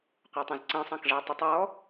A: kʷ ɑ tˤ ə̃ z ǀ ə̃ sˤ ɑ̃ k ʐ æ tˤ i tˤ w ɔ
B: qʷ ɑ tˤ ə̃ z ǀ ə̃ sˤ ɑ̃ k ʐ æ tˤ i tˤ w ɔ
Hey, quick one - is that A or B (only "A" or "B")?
B